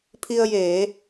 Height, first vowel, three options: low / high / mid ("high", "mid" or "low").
high